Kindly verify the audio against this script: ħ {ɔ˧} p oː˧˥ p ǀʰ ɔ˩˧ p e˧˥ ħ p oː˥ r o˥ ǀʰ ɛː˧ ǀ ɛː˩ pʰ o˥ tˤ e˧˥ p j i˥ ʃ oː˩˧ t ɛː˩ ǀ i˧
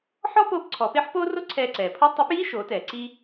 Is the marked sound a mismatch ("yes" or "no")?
yes